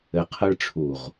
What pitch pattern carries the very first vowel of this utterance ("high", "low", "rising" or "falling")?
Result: low